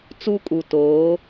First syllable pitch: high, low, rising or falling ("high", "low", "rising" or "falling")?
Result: high